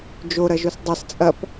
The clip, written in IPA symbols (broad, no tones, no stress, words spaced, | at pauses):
d͡ʒoɾɐʒos dˤɐs t͡sʼɐp